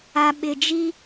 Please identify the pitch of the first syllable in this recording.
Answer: low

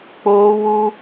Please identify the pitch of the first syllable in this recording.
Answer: high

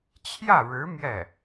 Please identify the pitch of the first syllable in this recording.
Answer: falling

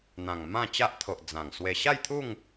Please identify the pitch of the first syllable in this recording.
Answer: low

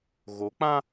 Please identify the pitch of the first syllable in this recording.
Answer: rising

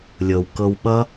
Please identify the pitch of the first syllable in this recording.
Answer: low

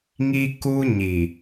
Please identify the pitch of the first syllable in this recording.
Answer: high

